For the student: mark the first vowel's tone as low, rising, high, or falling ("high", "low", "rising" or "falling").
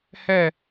falling